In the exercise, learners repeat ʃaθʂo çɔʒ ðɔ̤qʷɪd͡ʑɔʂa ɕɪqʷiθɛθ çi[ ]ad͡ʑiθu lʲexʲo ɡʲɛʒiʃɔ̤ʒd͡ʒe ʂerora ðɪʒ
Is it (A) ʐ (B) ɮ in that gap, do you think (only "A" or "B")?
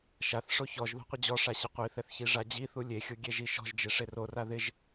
A